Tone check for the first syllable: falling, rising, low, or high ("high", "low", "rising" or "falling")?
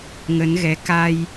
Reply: rising